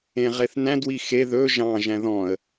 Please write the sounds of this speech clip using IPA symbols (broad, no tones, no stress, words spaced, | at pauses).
ẽʁeθnæ̃d wixe ðɵ ʒɑ̃ ʒæ̃ðɔ̃ə̯